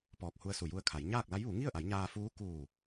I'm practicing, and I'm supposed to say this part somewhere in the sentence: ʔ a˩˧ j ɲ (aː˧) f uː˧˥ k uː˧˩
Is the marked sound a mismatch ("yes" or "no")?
no